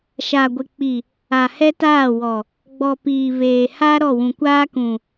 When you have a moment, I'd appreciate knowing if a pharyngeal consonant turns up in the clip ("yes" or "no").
no